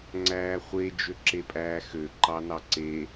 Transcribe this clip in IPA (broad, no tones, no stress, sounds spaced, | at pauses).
ŋ͡ǀ æː χʷ e d͡ʒ ø ǁ e pʼ æː x ø ǃ ɑ n ɑ ǀ e